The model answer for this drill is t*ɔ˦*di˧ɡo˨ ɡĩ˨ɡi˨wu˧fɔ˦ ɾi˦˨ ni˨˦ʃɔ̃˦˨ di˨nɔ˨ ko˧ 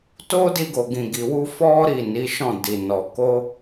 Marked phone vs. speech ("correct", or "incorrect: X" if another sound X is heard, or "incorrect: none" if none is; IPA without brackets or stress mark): incorrect: o˦